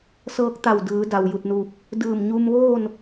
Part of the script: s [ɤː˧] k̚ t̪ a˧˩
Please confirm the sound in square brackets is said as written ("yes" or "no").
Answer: yes